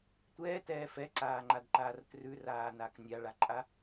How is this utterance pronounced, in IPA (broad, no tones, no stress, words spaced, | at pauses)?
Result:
tʷɛːtɛː fɛǀaːŋ͡ǃadǃaːr trʉraːnak nʲaɭaǃʼa